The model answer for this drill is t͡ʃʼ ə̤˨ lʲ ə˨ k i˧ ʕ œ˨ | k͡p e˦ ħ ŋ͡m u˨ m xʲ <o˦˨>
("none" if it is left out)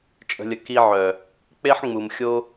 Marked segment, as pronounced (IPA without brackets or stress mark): o˧